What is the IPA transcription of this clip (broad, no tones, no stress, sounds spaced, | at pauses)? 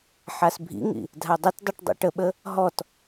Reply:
ħ a s bʱ ḭ ŋ ḭ | dʱ a dˤ ə t dˤ ɯ ʈ dˤ ɛ̰ ʈ ə ɓ ə | ɦ ɔ t